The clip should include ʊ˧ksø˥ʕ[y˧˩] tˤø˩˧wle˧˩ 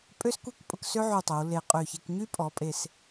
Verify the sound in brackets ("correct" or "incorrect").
correct